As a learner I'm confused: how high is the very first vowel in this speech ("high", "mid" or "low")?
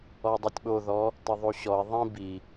mid